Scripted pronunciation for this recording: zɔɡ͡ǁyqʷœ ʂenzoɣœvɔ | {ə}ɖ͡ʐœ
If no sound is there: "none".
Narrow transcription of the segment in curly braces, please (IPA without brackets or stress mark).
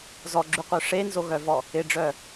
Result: ɪ